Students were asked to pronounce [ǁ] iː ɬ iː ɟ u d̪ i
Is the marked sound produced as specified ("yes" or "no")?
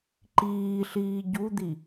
no